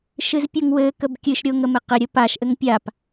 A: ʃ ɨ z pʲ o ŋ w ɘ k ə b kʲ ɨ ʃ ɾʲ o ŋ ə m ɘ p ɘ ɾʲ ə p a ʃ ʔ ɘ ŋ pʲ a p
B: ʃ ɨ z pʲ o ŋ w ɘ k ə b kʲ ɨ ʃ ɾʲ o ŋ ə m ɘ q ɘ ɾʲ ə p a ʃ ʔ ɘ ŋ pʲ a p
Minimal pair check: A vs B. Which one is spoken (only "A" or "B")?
B